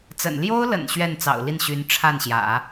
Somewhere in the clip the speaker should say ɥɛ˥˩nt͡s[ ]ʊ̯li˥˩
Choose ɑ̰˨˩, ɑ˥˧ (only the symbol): ɑ̰˨˩